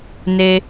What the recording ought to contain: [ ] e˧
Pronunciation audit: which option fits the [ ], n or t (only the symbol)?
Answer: n